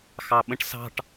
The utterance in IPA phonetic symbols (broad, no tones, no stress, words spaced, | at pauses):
xɑɓə̃ʈsɑ̤ʈ